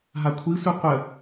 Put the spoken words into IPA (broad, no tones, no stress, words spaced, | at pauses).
ɦakʷʰisʷi qʷə